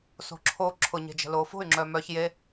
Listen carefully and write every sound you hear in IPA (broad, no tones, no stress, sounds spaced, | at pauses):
s o̤ ǁʰ o ǁʰ ʊ ɲ e̤ d͡ʒ ə̤ l o f o̤ y̯ ŋ͡ǁ œ m œ ç j e